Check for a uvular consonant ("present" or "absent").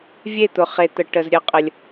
present